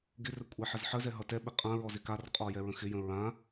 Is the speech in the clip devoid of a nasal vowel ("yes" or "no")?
no